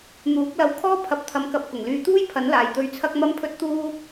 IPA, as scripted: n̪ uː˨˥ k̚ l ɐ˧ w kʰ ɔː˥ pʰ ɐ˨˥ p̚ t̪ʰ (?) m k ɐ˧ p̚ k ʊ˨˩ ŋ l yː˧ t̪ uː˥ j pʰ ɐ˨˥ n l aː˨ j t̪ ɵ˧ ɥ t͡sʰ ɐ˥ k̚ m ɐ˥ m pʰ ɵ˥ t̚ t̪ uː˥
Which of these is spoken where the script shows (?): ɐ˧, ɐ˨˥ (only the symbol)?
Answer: ɐ˧